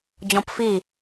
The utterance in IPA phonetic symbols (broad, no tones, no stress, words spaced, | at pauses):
d͡ʑɔ̃pfi